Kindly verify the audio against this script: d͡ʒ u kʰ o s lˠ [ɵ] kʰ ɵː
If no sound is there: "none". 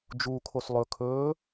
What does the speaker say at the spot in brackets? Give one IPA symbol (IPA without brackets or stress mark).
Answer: ɵ